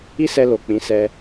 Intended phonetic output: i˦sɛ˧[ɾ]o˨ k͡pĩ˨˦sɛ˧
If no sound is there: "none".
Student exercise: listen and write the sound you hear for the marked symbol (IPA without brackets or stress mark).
l